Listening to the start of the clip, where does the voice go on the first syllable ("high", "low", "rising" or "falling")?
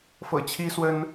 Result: low